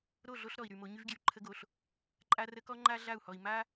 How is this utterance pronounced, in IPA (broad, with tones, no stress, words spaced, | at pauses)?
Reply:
ɾo˦˨ɮo˦ɬ ɾɔ˨i̯ɾy˨mo˨˦ ɲy˦vɡjy˨ǃʰə˦ɡo˨ɬ | ǃʼa˦rə˦ kɔ˦ŋ͡ǃa˦ ɮa˦˨u̯hɔ˨i̯ ma˦